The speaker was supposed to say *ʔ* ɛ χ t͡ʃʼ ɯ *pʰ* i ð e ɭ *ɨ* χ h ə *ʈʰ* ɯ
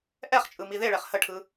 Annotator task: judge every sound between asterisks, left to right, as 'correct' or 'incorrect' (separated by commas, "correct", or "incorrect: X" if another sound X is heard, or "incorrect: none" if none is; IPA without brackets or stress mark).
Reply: correct, incorrect: m, incorrect: ɛ, correct